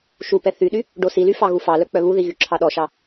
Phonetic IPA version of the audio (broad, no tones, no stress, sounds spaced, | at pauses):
ʃ u p ɛ θ y ɗ y | ɖ o s i l y f ɑ ɣ u f ɑ l œ k͡p œ β u ð i ɣ y ǁʰ ɑ ɗ ɔ ʃ ɑ